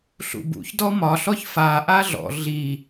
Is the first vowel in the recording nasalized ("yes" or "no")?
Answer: no